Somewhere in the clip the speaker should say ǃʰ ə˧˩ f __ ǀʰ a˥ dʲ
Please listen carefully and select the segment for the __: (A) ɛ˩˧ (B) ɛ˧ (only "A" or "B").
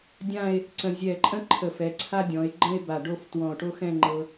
A